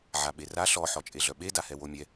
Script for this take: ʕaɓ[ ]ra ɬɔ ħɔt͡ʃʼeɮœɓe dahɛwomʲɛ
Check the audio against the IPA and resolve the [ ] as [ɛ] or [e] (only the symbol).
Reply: e